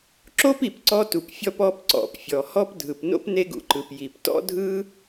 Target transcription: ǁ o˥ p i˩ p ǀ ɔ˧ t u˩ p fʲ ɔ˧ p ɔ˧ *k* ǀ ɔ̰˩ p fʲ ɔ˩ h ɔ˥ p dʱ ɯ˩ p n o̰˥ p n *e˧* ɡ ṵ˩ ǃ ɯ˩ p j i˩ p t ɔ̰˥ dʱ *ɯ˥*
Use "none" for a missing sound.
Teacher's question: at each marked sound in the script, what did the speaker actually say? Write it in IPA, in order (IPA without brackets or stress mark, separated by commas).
p, e˥, ɯ˥